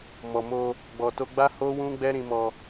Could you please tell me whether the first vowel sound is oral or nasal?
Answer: oral